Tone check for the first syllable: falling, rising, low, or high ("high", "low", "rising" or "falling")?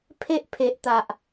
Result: high